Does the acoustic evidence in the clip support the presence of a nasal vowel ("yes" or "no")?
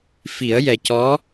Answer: no